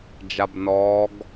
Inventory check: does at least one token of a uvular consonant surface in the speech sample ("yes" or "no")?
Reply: no